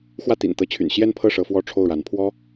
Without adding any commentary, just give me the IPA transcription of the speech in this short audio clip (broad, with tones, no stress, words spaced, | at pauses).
xwä˥˩t̪ḭ˨˩nt̪ɤ˧˥t͡ɕʰy̰˨˩n ɕjɛ˥˧npʰɤ˥˩ ʂɤ˧˥fwɔ˥˧ʈ͡ʂʰo˥˩ʊ̯ɻa˧˥n pʰwɔ˥